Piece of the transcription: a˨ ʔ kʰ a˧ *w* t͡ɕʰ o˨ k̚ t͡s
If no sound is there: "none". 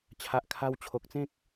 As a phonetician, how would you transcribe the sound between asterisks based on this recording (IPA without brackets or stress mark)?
w